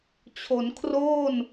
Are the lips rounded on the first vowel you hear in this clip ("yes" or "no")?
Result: yes